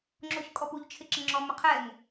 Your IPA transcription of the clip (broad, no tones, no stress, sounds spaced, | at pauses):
ŋ͡ǁ o ç kʼ ɔ p u ʎ t͡ʃʰ ɪ ǁ ə ŋ͡ǁ ɔ m ʏ qʰ ɛ ŋ